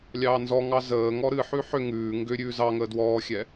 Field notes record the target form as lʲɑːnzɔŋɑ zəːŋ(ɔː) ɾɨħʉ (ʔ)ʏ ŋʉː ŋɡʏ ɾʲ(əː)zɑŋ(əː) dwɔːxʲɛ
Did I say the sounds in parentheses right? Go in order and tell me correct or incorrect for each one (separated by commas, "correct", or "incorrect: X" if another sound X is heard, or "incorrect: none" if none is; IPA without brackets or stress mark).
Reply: incorrect: ɔ, incorrect: ħ, incorrect: ʉː, correct